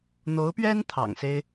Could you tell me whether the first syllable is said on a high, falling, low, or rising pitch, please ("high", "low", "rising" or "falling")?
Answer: rising